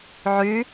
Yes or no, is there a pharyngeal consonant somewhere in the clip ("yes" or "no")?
yes